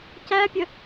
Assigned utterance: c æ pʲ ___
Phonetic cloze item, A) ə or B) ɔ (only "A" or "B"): A